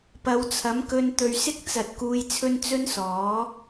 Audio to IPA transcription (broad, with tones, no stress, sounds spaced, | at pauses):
p ɐ˨˧ w t͡sʰ ɐ˨˥ m k ɵ˧ n t̪ ɵ˨ ɥ s ɪ˥ k̚ t͡s ɐ˨ t̚ k uː˧ j t͡sʰ ɵ˥ n t͡s ɵ˥ n s ɔː˨˥